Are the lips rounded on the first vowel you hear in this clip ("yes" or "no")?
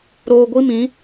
yes